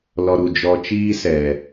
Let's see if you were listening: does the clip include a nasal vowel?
no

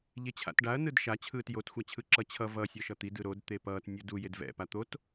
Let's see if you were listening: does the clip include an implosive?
no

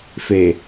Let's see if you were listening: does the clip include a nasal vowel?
no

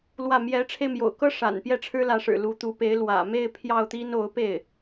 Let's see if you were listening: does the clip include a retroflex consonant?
yes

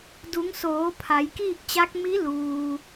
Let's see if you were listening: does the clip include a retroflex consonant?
no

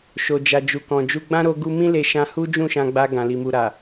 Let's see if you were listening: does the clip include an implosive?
no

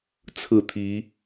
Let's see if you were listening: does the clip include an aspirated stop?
yes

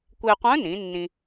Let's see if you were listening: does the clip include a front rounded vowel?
yes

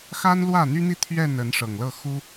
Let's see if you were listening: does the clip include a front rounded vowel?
yes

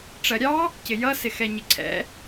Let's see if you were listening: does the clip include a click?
yes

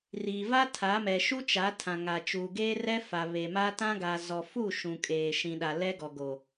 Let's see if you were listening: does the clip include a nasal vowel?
yes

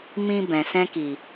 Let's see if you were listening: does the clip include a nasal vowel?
yes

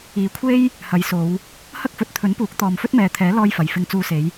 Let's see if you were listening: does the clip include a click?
no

